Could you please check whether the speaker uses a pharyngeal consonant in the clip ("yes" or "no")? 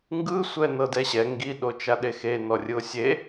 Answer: no